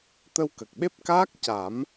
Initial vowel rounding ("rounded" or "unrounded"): unrounded